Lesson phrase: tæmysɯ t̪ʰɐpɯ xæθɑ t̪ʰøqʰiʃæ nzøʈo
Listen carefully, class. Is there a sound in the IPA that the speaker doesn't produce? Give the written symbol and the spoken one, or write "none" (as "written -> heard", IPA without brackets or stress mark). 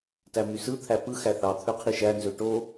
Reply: ɐ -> æ